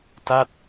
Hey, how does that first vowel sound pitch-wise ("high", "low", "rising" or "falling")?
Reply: falling